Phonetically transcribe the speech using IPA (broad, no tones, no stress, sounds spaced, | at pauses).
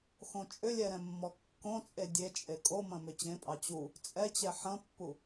x õ t͡ʃʼ ʏ lʲ ɛ ɾ ɛ̃ mː ɔ kː õ t͡sʼ e dʲ e t͡ʃʼ e kʼ o m ɐ̃ m ʏ t͡ɕ ẽ pʼ ɑ t͡ɕ u | t͡sʼ ɛ t͡ɕ ɛ ħ ɐ̃ pː u